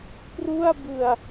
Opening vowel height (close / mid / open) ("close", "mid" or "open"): close